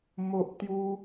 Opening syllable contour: high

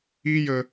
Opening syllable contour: high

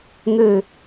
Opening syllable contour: low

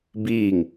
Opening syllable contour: falling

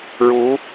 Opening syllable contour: rising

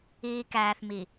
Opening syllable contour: low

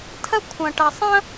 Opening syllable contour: high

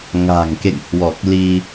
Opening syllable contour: low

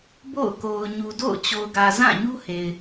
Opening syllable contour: falling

